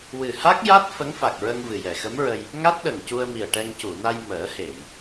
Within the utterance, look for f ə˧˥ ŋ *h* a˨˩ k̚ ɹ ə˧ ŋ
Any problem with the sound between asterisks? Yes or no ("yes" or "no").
yes